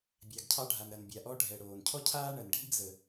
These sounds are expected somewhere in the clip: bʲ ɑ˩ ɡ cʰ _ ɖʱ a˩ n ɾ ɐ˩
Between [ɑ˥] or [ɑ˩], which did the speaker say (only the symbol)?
ɑ˥